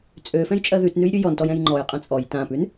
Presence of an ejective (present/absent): present